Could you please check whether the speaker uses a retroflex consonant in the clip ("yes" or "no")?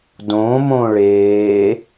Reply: yes